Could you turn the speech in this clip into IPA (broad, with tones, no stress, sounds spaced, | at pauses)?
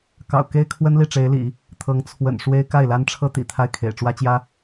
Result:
k ɑ̰˨˩ ʊ̯ k e˥ ɪ̯ kʰ w ə˥ n l i˥˩ ʈ͡ʂ e˧˥ ɪ̯ l ḭ˨˩˦ | t̪ʰ ɤ˧˥ ŋ t͡sʰ w ə̰˨˩ n ʂ w e˥ ɪ̯ k a˥˩ ɪ̯ l a˥ n ʈ͡ʂʰ ɤ˥ t̪ ḭ˨˩ t̪ʰ a˥˩ ɪ̯ kʰ ḛ˨˩ ɪ̯ ʈ͡ʂ w ä˥ t͡ɕ j ä˥